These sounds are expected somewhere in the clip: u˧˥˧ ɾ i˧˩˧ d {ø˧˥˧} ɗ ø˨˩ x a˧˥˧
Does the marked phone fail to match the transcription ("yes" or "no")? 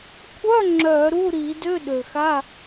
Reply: no